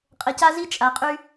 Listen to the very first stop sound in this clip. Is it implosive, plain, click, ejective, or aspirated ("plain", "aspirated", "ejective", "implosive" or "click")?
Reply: ejective